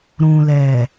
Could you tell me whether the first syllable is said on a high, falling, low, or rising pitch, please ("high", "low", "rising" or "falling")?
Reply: low